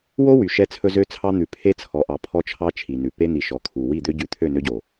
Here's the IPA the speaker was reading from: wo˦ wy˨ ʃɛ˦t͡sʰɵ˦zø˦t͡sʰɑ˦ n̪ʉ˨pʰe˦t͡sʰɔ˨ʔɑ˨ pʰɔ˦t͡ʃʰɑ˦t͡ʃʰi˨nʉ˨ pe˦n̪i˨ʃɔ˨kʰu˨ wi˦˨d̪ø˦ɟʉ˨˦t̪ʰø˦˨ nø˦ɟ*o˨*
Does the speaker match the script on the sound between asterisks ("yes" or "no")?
yes